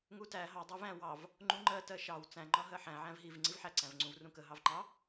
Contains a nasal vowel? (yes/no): yes